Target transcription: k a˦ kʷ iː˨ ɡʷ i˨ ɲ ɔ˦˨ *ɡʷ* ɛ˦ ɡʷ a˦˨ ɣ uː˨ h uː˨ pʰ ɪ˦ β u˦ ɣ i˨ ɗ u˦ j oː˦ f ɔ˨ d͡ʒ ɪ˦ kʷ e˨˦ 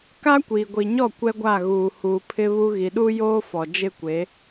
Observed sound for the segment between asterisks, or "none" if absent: kʷ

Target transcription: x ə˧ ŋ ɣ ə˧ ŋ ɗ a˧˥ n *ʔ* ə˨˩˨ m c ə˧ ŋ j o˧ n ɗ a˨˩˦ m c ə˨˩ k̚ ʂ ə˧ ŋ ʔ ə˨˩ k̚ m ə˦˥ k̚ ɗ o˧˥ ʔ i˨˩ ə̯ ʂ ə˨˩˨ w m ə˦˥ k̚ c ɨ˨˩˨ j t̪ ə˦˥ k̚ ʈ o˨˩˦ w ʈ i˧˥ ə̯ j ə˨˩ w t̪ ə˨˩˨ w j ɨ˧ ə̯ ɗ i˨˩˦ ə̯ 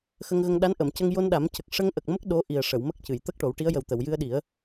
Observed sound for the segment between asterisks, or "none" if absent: ʔ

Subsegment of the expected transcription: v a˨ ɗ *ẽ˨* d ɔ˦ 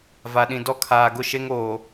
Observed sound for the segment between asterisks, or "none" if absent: ĩ˨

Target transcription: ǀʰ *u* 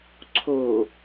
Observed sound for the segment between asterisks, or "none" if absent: o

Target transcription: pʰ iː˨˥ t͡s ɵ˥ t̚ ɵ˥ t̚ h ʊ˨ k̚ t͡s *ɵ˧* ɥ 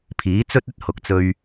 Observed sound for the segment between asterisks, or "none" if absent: ɵ˧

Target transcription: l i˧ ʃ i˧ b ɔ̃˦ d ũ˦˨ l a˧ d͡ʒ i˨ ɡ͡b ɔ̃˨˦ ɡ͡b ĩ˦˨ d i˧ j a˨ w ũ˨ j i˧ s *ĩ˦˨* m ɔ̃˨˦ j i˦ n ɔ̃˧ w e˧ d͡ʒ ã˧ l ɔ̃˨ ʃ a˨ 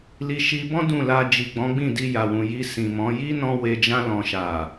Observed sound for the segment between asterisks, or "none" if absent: ĩ˨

